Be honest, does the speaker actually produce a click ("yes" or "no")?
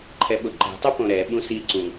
yes